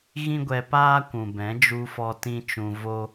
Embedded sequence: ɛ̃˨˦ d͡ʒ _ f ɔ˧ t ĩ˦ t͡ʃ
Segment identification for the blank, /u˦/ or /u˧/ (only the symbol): u˧